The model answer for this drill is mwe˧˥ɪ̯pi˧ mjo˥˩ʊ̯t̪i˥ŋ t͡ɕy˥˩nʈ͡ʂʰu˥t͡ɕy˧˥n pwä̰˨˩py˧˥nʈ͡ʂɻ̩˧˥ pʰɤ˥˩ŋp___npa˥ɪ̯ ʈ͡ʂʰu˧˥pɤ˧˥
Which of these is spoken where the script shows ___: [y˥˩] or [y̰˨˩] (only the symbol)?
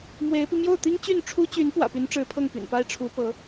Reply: y̰˨˩